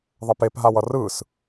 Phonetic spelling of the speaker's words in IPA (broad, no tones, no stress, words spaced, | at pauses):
ðˤɛpepɦaw ʌrɯs